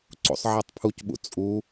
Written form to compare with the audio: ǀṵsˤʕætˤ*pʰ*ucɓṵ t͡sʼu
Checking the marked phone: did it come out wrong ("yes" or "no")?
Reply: no